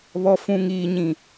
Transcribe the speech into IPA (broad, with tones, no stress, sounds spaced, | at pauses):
β ɔ˨ f ũ˨ ŋ iː˨ ɲ ĩ˨